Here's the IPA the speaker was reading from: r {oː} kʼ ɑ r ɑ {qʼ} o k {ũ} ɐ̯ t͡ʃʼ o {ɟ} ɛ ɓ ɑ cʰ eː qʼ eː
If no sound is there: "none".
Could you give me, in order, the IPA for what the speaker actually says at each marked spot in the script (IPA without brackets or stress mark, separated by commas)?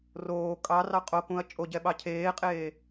oː, qʼ, ũ, ɟ